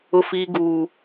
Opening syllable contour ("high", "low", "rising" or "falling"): high